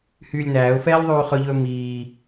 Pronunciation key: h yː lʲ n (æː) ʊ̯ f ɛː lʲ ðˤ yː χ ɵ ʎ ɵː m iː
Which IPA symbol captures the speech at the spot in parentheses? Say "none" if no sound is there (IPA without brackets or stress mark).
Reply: æː